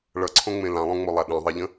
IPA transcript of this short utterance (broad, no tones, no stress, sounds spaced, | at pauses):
ɭ ʌ ǀʰ õ ŋ͡m ẽ l ã lˠ õ ŋ͡m o lˠ a ɗ ẽ ðˤ e ʎ ə̃